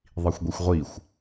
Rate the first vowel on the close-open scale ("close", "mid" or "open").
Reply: close